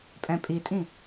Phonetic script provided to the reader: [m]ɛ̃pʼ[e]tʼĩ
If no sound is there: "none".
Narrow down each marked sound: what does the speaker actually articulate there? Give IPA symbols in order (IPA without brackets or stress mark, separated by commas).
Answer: pʼ, i